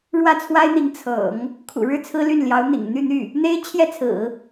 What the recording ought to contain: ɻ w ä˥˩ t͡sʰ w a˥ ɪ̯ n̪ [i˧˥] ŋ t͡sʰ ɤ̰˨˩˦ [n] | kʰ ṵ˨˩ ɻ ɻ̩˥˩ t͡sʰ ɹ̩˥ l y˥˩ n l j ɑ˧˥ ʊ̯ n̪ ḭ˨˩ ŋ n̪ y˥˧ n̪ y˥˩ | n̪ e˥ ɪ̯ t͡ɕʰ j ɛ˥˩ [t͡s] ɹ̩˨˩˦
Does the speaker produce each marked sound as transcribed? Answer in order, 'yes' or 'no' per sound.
yes, no, no

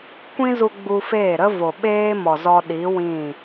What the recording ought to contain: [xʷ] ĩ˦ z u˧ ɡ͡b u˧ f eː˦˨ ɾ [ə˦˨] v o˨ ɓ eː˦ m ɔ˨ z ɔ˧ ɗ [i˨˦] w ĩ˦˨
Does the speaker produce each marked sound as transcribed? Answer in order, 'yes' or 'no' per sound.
no, no, yes

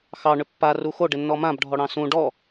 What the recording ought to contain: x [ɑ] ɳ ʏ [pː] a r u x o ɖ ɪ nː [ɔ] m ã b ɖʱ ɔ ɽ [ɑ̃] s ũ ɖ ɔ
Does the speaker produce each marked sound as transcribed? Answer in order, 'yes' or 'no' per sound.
yes, yes, yes, yes

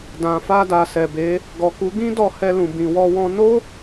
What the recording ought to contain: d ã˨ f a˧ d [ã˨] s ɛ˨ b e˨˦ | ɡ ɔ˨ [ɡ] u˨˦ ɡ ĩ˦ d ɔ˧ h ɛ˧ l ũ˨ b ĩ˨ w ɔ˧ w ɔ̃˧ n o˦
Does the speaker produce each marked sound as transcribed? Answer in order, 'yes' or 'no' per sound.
no, no

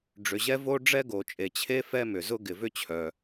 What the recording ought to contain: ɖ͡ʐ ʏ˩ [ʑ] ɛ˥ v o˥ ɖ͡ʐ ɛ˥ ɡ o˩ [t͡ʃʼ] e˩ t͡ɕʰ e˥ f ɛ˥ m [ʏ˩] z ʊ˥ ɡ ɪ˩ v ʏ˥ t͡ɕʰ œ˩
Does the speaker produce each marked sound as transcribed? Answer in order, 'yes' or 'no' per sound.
yes, yes, yes

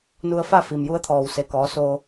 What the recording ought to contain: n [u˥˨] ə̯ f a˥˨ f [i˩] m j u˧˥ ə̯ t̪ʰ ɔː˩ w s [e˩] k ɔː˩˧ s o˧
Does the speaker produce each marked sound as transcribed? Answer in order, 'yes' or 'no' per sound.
no, yes, yes

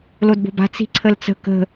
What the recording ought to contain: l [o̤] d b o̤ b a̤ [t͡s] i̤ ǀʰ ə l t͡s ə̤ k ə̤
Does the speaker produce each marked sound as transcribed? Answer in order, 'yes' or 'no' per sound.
no, yes

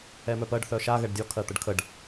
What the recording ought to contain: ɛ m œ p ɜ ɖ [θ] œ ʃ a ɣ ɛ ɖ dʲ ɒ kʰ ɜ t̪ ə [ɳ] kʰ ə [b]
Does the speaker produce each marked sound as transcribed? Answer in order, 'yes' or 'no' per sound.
yes, no, no

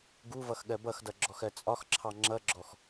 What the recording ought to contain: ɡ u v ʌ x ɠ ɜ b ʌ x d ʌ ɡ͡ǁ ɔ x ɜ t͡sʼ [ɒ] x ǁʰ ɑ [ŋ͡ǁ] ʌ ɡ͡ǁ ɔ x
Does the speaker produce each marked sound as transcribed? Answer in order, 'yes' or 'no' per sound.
yes, yes

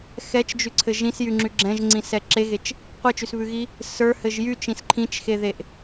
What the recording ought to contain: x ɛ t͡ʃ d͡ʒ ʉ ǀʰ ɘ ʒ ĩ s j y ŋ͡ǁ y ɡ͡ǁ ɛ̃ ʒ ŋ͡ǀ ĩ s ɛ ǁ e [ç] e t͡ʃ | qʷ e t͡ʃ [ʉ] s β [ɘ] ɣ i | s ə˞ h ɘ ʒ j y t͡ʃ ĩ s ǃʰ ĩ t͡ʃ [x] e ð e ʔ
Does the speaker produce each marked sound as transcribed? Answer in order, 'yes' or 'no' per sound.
no, yes, no, yes

